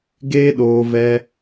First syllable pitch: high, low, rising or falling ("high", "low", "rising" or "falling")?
high